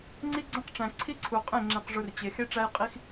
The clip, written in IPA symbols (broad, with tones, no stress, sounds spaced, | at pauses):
ŋ͡ǀ i˦ ɡ͡ǀ ẽ˦ q ʈ͡ʂ æ̃˨ ǀʰ i˦ ǀʰ u˨ qʼ ẽ˦˨ ŋ͡ǁ ẽ˨ q ʐ u˨ r t͡ɕ e˨ x e˦ ʈ͡ʂ æ˦ j qʼ i˦ x